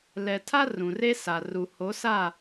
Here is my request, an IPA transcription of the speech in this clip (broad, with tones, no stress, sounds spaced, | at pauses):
l ɛ˨ tʰ a˦ r ũ˨ r e˦ s a˨ r u˨ h o˨˦ s a˦˨